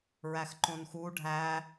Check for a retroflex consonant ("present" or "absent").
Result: present